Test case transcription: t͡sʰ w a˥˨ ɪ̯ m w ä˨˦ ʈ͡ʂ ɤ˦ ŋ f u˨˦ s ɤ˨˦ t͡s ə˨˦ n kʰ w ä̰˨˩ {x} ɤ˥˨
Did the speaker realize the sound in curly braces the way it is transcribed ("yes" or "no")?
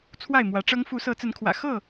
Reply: yes